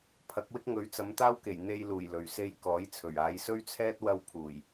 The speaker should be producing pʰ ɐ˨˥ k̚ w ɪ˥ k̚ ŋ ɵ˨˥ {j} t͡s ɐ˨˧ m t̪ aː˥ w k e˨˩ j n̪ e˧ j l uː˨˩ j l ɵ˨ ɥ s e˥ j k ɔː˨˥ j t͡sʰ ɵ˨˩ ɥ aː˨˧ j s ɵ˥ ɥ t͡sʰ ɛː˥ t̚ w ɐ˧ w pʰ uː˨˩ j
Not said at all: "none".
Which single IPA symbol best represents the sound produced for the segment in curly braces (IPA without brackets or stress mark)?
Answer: ɥ